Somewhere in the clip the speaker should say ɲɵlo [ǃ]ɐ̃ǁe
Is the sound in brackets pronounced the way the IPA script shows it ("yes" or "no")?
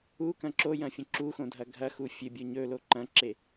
yes